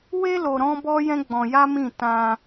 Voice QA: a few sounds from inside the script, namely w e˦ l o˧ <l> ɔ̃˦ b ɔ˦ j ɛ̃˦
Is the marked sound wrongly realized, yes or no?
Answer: yes